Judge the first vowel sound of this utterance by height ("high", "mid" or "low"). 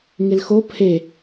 high